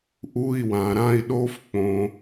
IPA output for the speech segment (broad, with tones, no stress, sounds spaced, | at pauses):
ʔ u˧˥˧ i̯ w ã˨ ɾ ã˥˧ i̯ ɗ o˦˥ f k͡p õ˨